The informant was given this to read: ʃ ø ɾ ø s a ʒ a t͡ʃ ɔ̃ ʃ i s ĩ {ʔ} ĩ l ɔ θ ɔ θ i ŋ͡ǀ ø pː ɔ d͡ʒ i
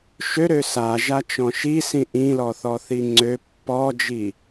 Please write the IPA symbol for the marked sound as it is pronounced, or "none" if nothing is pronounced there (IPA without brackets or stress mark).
ʔ